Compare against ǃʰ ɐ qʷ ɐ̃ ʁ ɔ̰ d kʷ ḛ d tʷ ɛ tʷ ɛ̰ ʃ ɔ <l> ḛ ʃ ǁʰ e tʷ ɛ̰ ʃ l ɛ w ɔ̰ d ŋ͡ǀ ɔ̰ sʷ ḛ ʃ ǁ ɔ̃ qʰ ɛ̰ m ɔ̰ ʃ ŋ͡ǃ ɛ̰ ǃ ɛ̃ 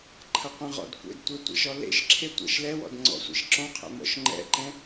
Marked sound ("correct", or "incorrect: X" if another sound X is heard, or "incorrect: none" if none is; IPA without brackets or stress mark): correct